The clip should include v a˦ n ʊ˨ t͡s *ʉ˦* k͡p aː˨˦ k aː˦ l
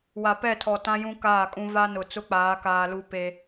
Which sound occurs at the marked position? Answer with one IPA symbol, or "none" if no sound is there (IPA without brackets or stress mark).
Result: ʊ˦